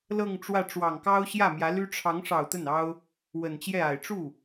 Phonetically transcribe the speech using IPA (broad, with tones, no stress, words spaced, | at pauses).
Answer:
lɤ˥˧ŋʈ͡ʂwä˥˩ ʈ͡ʂwɑ˨˩ŋkɑ˥ʊ̯ ɕjä˥˩mjä˧˥ly˥ ʈ͡ʂʰɑ˧˥ŋʂɑ˨˩ʊ̯ t̪ə˥˩nɑ˥ʊ̯ | wə˨˩nt͡ɕjɛ˥˩a˨˩ɪ̯ ʈ͡ʂu˥˩